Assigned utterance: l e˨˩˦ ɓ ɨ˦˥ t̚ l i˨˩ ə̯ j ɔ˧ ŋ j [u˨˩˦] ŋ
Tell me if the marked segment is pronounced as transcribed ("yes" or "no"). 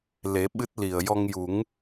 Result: yes